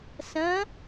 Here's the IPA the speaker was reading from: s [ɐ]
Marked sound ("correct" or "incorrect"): incorrect